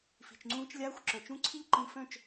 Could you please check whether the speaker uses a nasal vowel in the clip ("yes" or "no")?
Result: yes